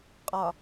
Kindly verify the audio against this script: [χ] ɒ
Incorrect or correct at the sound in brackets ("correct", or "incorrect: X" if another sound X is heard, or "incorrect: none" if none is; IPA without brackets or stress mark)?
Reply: incorrect: qʼ